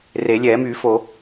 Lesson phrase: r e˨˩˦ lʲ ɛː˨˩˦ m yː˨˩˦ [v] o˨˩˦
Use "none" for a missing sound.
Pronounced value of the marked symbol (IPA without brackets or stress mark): f